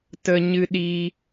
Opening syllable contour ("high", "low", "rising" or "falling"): high